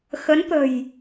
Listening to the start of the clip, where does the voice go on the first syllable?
rising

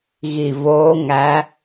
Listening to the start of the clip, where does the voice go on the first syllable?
low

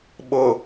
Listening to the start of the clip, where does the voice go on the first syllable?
low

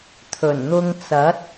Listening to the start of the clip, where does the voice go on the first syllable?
low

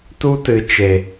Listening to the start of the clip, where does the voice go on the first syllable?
high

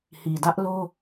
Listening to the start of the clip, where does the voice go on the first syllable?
low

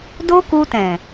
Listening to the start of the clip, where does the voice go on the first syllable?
high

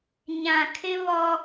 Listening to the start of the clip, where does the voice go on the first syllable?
low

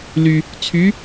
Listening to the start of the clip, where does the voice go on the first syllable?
low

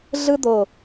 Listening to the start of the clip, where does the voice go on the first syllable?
high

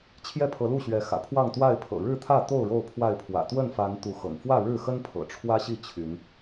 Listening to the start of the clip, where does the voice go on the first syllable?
falling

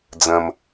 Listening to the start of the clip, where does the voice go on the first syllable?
low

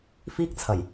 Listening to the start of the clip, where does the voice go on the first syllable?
high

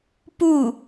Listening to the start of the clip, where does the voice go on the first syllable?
falling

